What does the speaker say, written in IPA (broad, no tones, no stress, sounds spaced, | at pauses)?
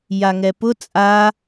j a ŋ ɛ p ʊ t͡sʼ a